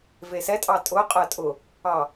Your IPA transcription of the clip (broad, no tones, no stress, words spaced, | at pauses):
vesɛtʼɑ tʼʊqʼɜ tʼʊ | ɑ